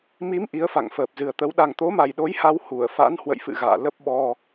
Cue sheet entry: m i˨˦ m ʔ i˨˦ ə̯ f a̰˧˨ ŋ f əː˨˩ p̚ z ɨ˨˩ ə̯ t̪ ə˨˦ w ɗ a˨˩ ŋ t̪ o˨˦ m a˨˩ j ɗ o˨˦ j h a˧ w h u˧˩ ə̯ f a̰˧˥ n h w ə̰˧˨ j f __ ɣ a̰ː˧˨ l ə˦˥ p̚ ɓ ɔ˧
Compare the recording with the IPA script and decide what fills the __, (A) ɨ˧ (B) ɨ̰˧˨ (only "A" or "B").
B